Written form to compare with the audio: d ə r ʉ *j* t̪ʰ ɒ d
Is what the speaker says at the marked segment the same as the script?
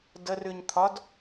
no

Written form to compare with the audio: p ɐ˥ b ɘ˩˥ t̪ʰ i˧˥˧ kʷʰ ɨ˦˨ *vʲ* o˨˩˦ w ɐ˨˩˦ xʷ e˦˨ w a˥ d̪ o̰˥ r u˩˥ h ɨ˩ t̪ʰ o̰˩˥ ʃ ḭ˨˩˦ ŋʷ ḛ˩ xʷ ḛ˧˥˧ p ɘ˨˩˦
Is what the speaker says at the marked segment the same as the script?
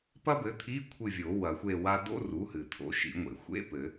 yes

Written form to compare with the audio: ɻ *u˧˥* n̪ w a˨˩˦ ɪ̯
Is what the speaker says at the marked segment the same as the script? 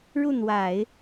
no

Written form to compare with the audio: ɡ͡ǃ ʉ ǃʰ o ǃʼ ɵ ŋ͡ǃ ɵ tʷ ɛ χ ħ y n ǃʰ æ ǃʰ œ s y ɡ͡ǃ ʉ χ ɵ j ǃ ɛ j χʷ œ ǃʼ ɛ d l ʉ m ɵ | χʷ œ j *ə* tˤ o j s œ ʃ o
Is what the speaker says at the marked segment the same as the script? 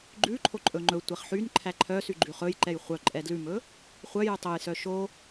no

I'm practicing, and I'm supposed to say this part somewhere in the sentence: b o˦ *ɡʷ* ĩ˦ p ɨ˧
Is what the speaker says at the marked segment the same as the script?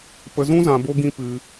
no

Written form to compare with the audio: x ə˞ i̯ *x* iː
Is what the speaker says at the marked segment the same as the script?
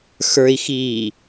yes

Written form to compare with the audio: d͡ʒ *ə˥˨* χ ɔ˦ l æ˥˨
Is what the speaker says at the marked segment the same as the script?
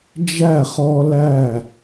no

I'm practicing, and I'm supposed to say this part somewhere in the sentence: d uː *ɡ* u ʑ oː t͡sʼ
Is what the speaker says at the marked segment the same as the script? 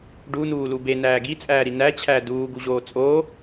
yes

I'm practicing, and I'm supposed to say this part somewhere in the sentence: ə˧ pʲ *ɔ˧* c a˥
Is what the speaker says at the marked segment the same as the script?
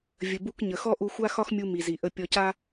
yes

